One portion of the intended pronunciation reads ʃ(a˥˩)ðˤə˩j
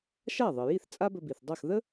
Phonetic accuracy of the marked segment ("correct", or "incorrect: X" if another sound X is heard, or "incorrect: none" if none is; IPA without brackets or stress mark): correct